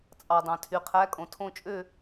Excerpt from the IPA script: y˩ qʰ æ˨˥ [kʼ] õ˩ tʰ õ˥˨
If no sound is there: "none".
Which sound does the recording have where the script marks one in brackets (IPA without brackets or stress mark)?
kʼ